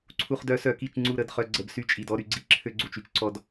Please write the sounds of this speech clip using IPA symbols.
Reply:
ǀʰ u˨ χ d œ˨˦ s œ˨ k i˦˨ t͡ʃ ŋ͡ǀ u˦˨ ɾ ə˦˨ d χ œ˨ ɡ͡ǀ ə˨ b s y˦ t͡ʃʼ i˨ d ɔ˦ ɾ y˨ ɡ͡ǀ i˦ ǁʰ ø˦ ɡ͡ǀ u˨ t͡ʃ y˦ t͡ʃ ǀ ɔ˦ d

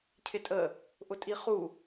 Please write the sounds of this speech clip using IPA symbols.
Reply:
cʰ ɪ tʼ ə | ʔ ʊ tʼ i χ u

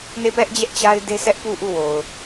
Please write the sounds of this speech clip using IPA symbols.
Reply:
n e˦˨ p ɛ˦ ʔ d͡ʑ ɛ˦ ʔ t͡ɕ a˦ ɪ̯ d e˦ s ɛ˦ ʔ p u˦˨ ʔ u˦˨ w o˨ ʊ̯

